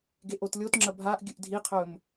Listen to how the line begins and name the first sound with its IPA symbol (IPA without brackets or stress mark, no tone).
ɡ